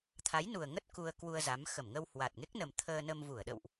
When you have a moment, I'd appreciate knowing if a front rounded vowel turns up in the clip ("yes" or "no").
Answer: no